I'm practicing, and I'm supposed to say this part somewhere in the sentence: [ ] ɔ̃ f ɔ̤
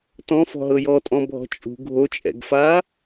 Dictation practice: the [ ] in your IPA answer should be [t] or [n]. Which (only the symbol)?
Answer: t